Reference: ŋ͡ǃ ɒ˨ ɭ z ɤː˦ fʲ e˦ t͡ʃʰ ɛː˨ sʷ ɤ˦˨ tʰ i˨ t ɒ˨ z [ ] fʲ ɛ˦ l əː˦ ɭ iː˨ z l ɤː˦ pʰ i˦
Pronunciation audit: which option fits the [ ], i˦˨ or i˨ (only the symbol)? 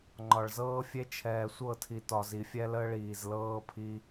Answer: i˨